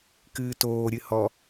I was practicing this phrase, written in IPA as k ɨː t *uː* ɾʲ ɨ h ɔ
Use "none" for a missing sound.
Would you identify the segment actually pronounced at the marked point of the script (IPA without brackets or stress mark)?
oː